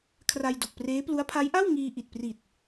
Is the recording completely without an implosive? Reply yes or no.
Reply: yes